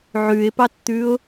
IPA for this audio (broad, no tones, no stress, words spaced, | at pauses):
ʕʉɪ̯pɑtt̪ʉʊ̯